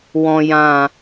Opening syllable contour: low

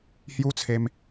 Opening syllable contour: high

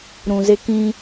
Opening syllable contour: low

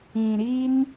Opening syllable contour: low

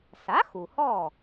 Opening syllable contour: rising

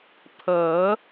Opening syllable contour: rising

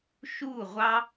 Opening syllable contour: falling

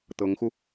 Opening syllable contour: rising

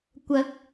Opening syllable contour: rising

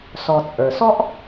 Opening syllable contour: low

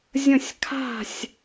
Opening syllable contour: falling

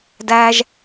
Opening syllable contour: high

